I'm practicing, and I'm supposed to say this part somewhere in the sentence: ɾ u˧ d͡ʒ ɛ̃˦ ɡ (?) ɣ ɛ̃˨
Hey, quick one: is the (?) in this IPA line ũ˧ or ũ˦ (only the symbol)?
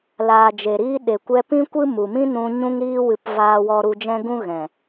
ũ˦